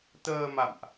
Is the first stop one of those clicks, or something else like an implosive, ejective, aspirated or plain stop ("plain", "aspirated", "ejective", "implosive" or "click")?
plain